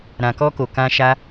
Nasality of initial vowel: nasal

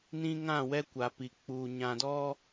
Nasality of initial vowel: nasal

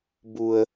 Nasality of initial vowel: oral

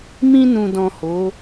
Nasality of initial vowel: nasal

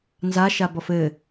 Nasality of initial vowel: oral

